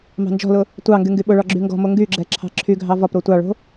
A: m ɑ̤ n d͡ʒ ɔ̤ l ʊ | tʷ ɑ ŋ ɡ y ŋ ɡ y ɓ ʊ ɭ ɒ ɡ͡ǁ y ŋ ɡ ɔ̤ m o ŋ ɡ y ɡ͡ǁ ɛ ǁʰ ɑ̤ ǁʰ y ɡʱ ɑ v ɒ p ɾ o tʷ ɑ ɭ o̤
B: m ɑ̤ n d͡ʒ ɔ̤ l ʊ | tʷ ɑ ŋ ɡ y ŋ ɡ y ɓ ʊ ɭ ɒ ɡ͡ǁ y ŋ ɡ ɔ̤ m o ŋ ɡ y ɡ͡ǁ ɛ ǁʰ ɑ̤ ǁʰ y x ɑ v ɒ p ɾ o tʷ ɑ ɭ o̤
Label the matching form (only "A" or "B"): A